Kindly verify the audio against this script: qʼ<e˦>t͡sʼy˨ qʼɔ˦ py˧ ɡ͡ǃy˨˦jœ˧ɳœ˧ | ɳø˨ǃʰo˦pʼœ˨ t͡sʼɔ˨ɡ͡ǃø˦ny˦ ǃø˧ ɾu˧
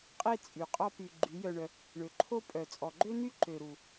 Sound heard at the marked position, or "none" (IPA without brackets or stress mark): e˦